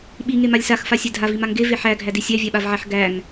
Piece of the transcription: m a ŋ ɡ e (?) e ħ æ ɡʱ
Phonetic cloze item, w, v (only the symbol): v